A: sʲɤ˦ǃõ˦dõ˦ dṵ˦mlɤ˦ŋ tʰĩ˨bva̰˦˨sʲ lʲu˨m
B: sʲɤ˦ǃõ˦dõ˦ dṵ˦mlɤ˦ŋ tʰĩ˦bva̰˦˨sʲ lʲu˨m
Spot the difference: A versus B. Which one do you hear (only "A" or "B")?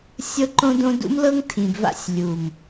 A